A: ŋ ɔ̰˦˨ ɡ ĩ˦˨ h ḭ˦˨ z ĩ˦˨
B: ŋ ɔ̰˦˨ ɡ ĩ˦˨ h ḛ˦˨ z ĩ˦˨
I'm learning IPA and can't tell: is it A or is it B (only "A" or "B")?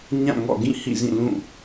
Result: A